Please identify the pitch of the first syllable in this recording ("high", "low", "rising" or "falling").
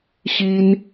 high